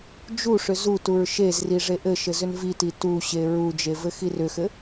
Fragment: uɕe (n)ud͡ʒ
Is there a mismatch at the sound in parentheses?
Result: yes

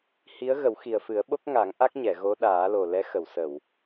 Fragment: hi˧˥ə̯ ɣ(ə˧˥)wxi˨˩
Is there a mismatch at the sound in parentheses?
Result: yes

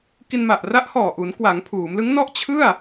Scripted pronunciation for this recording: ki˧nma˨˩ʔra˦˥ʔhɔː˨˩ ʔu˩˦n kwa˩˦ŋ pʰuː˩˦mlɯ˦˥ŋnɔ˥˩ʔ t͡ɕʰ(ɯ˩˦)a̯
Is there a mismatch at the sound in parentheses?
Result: yes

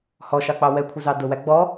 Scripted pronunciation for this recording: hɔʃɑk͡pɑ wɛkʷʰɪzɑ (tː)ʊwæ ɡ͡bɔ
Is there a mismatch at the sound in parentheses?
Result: yes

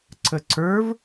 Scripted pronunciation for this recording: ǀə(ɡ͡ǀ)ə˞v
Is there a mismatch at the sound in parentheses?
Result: yes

